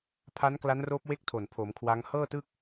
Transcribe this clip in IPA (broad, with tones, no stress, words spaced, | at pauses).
pʰa˦˥nkla˦˥nroː˦˥p̚ we˥˩k̚tʰo˨˩npʰoː˩˦m kʰwa˦˥ŋ hɤː˥˩tɯ˥˩k̚